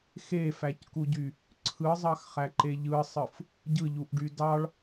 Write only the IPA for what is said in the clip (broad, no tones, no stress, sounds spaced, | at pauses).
x e f æ c k u ɟ y | ǀʰ ɯ zˤ ɑ x χ æ ǃ e ʎ ɯ sˤ ɯ f | ɟ ɯ ʎ u ʔ ɖ y d ɑ ɭ